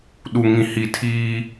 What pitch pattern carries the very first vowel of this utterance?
low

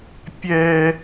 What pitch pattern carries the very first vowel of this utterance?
high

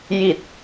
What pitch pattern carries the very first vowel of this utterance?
low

